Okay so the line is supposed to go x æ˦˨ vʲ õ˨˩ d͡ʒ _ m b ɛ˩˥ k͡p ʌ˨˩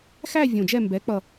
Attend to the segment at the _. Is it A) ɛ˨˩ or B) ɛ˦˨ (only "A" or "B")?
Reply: B